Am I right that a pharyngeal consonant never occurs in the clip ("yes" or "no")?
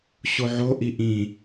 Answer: no